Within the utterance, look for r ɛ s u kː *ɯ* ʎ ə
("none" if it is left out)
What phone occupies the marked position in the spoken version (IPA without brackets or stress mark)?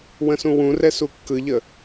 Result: ɯ